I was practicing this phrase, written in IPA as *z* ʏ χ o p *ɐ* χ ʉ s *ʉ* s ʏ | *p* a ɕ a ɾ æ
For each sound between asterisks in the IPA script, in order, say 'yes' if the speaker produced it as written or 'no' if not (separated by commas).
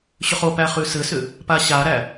no, no, no, yes